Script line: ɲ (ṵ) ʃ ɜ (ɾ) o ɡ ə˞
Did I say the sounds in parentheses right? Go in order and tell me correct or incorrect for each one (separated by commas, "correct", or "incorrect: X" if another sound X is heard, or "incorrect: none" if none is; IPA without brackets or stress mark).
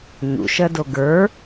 correct, incorrect: d